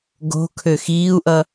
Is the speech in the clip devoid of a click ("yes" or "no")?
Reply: yes